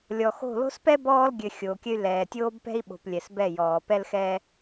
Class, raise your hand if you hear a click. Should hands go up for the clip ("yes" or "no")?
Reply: no